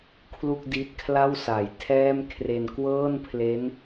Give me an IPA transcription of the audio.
kʰlu˥˩k̚di˦˥t̚kʰla˥˩w sa˩˦jtʰɛː˥˩mkʰre˧n kwɤː˥˩npʰle˦˥n

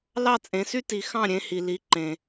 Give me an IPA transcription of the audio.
lɑ˥˩ t͡sʼẽ˩˥sy˥ti˩˥ xɑ̃˥˩ ɾʲẽ˧hi˩li˩˥ ǃẽ˩

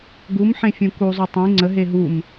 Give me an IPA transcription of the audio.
ɡumħẽfʲũ kuzˤu tˤĩ ŋ͡ǀəɦe ɦum

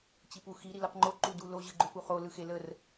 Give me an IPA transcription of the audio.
t͡ɕipuxi ɾilɯqŋ͡ǃo ǃudulo ʑɯɡ͡ǃʏpuχo lɯxelər

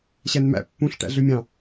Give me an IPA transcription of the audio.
ɕænmæ̰ pːũɬ ʈæ̰ɮømʲɑ̃

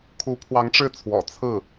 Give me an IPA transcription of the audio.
kʰu˧˥pʰwɑ˧˥ŋʈ͡ʂɻ̩˥˩t͡sʰwɔ̰˨˩ t͡sʰɹ̩˥˩

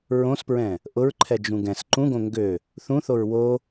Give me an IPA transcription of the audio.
ɹõspɹɛ̃ | ʔʊɹǃʰɛ d͡ʒũɡɛ̃s ǃũɡõ ŋɡø | θũθoɹ wo

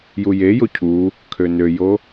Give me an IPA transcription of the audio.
jujejo cʰu | kʰønøjo

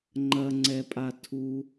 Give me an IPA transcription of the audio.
ŋ͡ǃɐŋ͡ǀɛpʼa tʰu

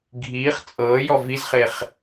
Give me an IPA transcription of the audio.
ɡʱiːχ t͡sʼɤːjɔ vizχeχ

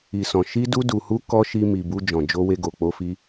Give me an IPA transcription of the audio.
i˨sɔ̃˨ ʃi˧du˧du˨hu˧ kɔ˦ ʃi˧mi˨bu˧ d͡ʒɔ̃˨d͡ʒo˧we˧ ɡo˨k͡po˧fi˧

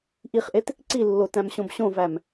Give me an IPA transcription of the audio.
ʔiχʔet | ǀilːo tæ̃mɕõbɕõvæm

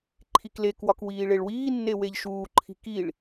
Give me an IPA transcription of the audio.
ǃʰiklekwɒk wiːɭeɭwiːnːe weʎʃuːǃʰi̤ kiɭ

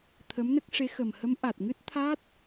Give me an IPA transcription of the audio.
t̪ʰə˧˥mnə˦˥k̚ʂe˧˥ xə˨˩mhə˧˥m ʔa˨˩t̚ŋɨ˦˥t̚t̪ʰa˦˥t̚

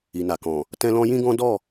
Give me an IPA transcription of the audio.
i˨na˨kɔ̃˨ | tɛ̃˦lɔ̃˦ jĩ˦ɡɔ̃˦dɔ˦˨

